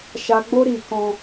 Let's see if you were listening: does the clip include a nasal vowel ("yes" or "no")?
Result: yes